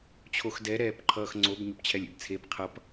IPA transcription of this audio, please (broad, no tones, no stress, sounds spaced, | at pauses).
t͡ɕʰ o x d ɛ ɾ ɛː p ǃʰ ʌː x ŋ͡ǀ o b ɲ o p t͡ɕʰ ɛ lʲ ḛ b t͡sʰ e b qʰ ʌ p